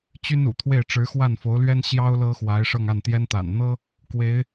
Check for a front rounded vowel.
present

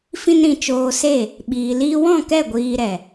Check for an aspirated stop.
absent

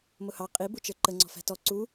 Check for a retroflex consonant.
absent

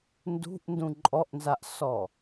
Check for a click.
present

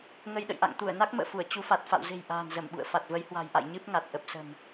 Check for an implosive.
present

